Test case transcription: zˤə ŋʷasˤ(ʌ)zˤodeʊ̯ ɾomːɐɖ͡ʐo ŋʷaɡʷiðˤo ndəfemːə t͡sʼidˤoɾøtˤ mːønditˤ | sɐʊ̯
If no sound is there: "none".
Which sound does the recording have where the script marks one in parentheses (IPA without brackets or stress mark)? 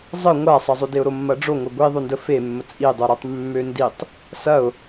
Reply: ʌ